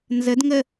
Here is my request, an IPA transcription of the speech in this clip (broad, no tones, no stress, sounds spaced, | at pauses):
n z ə d ŋ ə